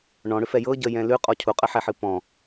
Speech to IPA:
ɳ ɔ̃ ɽ ʏ f ɛ j ɤ ɟ ə j ɛ̃ l ʉ qʼ ɔ cʰ u qʼ ə ħ ɛ ħ ɨ p ɔ̃

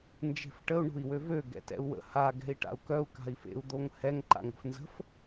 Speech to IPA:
n d͡ʒ e̤ f ʈ ə u̯ ɳ o̤ i̯ w ø v ø ɡ ɛ̰ t ɛ̰ u̯ w ə̰ h a ɡ ɛ̤ i̯ ʈ a̰ u̯ k œ u̯ k a̤ i̯ f ḛ u̯ d̪ o ŋ h ɛ ŋ ǃ a̰ ŋ ə̤ f n z ə̤ f

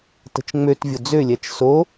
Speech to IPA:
t ə̤ t͡ʃ ŋ͡m ø t vʲ ʊ d͡z ø lʲ ɛ t͡ʃ s o

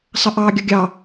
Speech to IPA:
sˤ ə ʔ ɑ ɡʲ ʌ ɡʲ ɑ

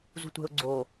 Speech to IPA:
z ṳ tʷ e̤ ʊ̯ ɡ͡ǀ o

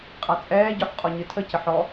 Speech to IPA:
qʼ a t͡sʼ ɛː ɟ ɔ ħ qʼ ɔ ɲ ɨ tʰ ə c ə ħ ɔ

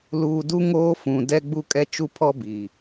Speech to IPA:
l uː˨ d u˦ ŋ oː˦ f ũ˨ d ɛ˦ ɡ͡b u˦ kʼ ɛ˦ t͡ʃ u˦ pʰ ɔ˦ b iː˨

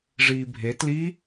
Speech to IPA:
ʐ iː bʱ e t l i

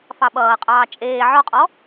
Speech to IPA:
f ɑ ɓ ʌː qʼ ɑː t͡ʃʼ eː ʕ ɔ qʼ ɔ

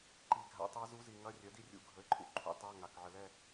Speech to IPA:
ǃ i˨˩ ɡʱ a̰˩˥ tˤ a˧˥ z u˧˥ z i˨˩ ŋ ɐ˧˥˧ rʲ œ˩˥ d i˥˧ rʲ ṵ˨˩ ɡʱ ə˩˥ ɪ̯ ǃʼ ṵ˩˥ ǃʰ ṵ˧˥ tˤ a˧˥˧ ŋ a˨˩ k ʕ ə˨˩ l ɛ˥˧

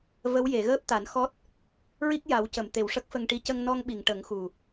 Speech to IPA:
v ə˧˥ w j e˨˩˨ ɣ əː˦˥ p̚ t̪ a˨˩˦ n x ɔ˦˥ t̚ | ɹ i˦˥ k̚ j a˨˩˦ w c ə˨˩˨ m t̪ e˨˩ w ʂ ə˦˥ k̚ f ə˧ ŋ ʈ i˧˥ c ə˧ ŋ n ɔ˧ ŋ ɓ i˨˩˨ ŋ ʈ ə˨˩˦ ŋ x u˨˩

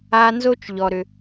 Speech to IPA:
a˨ n z o˦ t͡ʃ ʎ ɔ˨ ɾ ʏ˨

